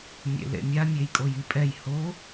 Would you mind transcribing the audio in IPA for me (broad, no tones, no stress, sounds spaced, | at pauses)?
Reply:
mʲ ḛ l ḛ mʲ a mʲ e j kʼ o j i pʼ ɛ j h o